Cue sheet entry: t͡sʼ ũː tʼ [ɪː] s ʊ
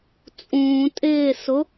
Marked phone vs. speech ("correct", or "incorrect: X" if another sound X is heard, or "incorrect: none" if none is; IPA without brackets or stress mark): correct